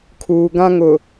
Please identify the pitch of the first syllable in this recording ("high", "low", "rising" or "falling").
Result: low